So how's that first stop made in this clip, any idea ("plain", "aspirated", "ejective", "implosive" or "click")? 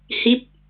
plain